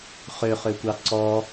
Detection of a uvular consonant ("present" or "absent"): present